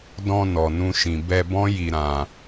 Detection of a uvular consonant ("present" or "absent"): absent